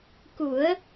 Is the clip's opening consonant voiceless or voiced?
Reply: voiceless